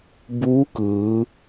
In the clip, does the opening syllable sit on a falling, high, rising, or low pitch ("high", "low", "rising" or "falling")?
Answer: rising